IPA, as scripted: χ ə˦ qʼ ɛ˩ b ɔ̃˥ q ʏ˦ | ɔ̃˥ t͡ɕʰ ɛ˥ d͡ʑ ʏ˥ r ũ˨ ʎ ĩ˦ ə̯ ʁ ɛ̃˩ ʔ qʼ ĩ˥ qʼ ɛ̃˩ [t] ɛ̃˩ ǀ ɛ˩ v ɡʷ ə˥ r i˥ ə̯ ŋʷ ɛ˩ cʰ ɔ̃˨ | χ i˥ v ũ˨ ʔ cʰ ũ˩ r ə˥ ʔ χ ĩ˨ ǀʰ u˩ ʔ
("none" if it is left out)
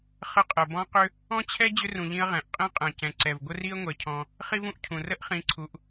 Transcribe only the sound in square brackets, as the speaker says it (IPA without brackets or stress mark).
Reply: c